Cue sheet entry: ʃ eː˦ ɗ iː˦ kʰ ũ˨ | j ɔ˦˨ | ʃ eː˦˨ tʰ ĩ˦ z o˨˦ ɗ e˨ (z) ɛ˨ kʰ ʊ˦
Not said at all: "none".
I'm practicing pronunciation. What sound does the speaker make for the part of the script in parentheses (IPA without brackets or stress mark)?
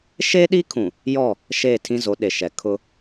ʃ